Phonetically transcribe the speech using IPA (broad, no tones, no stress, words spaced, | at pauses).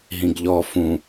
ɦĩɡʎɔ fũ